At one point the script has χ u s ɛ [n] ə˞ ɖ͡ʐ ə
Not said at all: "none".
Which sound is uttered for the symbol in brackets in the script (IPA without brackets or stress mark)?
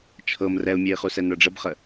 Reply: n